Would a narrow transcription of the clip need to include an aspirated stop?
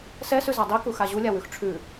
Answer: yes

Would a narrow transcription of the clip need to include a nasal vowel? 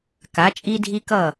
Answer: no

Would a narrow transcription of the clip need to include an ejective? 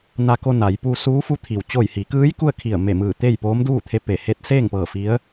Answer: no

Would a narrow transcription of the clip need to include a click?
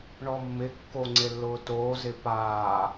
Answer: yes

